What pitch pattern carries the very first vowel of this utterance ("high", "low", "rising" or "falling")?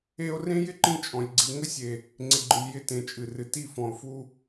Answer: high